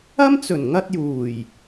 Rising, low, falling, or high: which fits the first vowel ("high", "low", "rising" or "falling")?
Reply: high